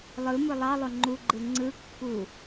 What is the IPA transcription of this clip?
lˠ ɯ m ɯ lˠ ɑ lˠ o ŋ͡ǃ u ɡ͡ǃ ɯ ŋ͡ǀ ɯ kː u

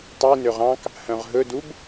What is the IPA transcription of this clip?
tˤ i n ø ʁ ɑ̃ k | h œ̃ ʁ ɦ ɵ d u b

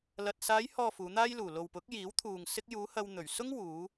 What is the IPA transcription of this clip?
l ɐ˨ t̚ s aː˨˧ j h ɔː˨ f uː˨˧ n̪ aː˥ j l uː˨ l o˨ w p ʊ˨˥ k̚ j iː˨˥ w t̪ʰ uː˨ ŋ s ɪ˧ k̚ j uː˨˧ h ɐ˧ w n̪ ɵ˨˩ ɥ s ʊ˥ ŋ w uː˨˧

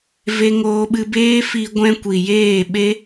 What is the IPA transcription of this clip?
v e˦ ŋ oː˦ ɓ ɨ˦ b eː˦ f i˧ ɡʷ ɛ̃˦ kʷ i˨ j eː˦˨ ɓ e˦

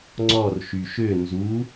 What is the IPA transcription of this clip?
ŋ͡ǀ ɔ r ʃ y ʃ ø n z u

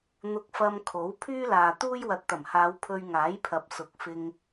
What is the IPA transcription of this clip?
n̪ ʊ˧ k̚ f ɐ˧ m kʰ o˨˥ w pʰ yː˥ l aː˨ t̪ uː˥ j w ɐ˨ t̚ t̪ ɐ˨˩ m h aː˨˧ w pʰ ɵ˧ ɥ ŋ aː˨˥ j pʰ ɐ˨ p̚ s ʊ˨ k̚ f ɪ˧ ŋ

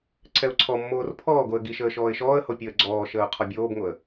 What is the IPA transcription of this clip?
ǀʰ ɛ ʊ̯ ǀʰ ɔ mː oː r pʰ ɔː ɡ o ə̯ ɡ i ʃ əː ʃ ɔː ɪ̯ ʃ ɔː ə̯ h o pʲ əː ɡ͡ǀ ɔː ʃ əː ʊ̯ qʰ ɔ bʲ oː b ŋ o ə̯

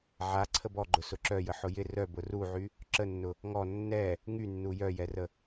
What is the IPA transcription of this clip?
ʕ a ǀʰ ə b ɔ ɡ͡ǃ ʊ s ʊ ǁ œ j ə ħ ʊ j ɪ r œ b ʊ r u ʕ y | ǁ ə nː ʊ | ŋ ɔ nː ɛ | ŋ y nː u j œ j ɛ r ə

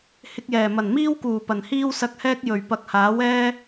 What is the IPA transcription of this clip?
h ɪ˧ k̚ j ɛː˨˩ m ɐ˨˩ n m iː˥ w k uː˨˩ p ɐ˨˩ n h iː˥ w s ɐ˧ k̚ h ɛː˥ k̚ j ɵ˨˩ ɥ p ɐ˨ k̚ h aː˨˥ w ɛː˥

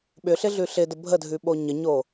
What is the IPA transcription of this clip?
ɓ ʏ ɬ ɪ ɮ ʉ ɬ ɪ d ə bʱ ə dʱ ʉ ɓ o ɲ ə ɲ o

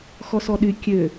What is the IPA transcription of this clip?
x ɔ s ɔ ɗ y kʲ ø

